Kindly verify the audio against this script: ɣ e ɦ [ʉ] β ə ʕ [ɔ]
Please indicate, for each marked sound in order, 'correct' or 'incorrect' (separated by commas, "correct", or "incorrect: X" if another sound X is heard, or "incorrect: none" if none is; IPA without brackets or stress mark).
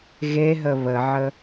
incorrect: ə, incorrect: ə